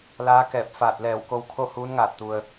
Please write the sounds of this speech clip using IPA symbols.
l aː˧˥ k ɛː˧˩ p̚ f aː˧˩ t̚ l ɛː˧˩ w k o˧˥ w kʰ o˥˨ h uː˧˥ n ŋ aː˧˩ t̚ t̪ u˩ ə̯

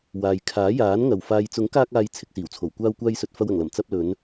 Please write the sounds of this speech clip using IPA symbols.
w aː˨ j kʰ aː˨˥ j aː˨˥ n ŋ ɐ˨˩ w f aː˨ j t͡s ʊ˨˥ ŋ k aː˧ k̚ aː˨ j t͡sʰ ɪ˨ k̚ s iː˨˩ w t͡sʰ o˨˩ w kʷ aː˧ w kʷ aː˧ j s ɵ˨ t̚ f ɐ˨ w ɐ˨˩ ŋ l ɐ˨˩ m t͡s ɐ˧ p̚ l ɵ˨˧ n

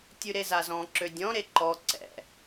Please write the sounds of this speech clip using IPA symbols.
tʲ ʉ ɾ e z a z ɔ̃ ǁ ø dʲ ɔ̃ ɾ e ǃ ɔ ǀ ɛ̰

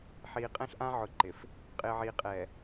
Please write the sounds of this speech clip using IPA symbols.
ħ iː˨ qʼ ɛ̃˦ ɬ ʔ ã˦ ʕ ʊ˨˦ ǃ ɪ˨ f | qʼ ɪː˨ ʕ iː˨ qʼ ɛː˨

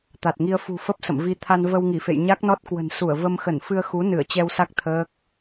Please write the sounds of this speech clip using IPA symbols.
t̪ a˨˩ t̚ ŋ i˧ ə̯ f ṳ˨˩ f ə˦˥ p̚ s ə̰˧˨ m v i˧ t̪ʰ a˧ n v ə˧ w ŋ i˧˩ f ḛ˧˨ j ɲ a˦˥ k̚ n ɔ˦˥ t̚ k w ə̤˨˩ n s u˧˩ ə̯ v ə˧ m x ə˧˩ n f ɨ˧ ə̯ x u˨˦ n ɨ˧˩ ə̯ t͡ɕ ɛ˧ w s a˦˥ k̚ t̪ʰ əː˦˥ k̚

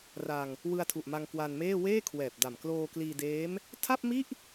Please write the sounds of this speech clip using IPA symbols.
r a˧ ŋ | w ɯ˧ a̯ tʰ u˨˩ ʔ m a˧ ŋ k w a˧ n m eː˥˩ w eː˥˩ kʰ w ɛː˨˩ p̚ d a˨˩ m k l oː˧ k l iː˧ d eː˦˥ m | tʰ a˥˩ p̚ m i˥˩ ʔ

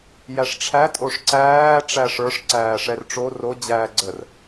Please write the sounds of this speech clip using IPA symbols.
j æ ʂ ʈ͡ʂʰ æ tʼ o ʂ ǀ æː ʈ͡ʂ æ ʂ ə˞ ʂ ǀ æː ʂ ɛ r ʈ͡ʂ o r o d͡ʑ æː ɡ͡ǀ ə r

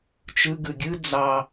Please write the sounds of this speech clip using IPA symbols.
t͡ʃ ɯ ɡ ɯ ɡʲ ɯ d͡z ɑ

